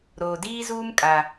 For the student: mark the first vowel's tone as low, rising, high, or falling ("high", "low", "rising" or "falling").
low